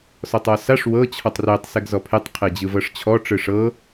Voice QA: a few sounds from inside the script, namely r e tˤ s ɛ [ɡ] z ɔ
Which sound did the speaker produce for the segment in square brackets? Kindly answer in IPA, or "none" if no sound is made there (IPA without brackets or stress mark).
ɡ